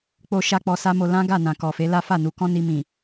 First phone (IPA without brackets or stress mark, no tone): k͡p